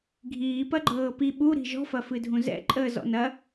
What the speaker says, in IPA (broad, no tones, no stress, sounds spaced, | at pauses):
ɡʱ iː p ɐ ɡ͡ǃ ɤː p i ɓ u ɾ i̤ ʒ ɔ̤ f ɐ f ɨ dʱ ũ z ɛ̰ ǃʼ əː z ɔ̰ n ɐ